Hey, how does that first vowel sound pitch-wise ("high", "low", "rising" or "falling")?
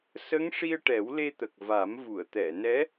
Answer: rising